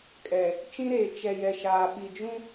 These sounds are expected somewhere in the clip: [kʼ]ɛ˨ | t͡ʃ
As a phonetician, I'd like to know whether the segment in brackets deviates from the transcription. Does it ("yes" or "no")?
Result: no